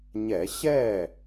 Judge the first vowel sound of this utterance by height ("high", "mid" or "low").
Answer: mid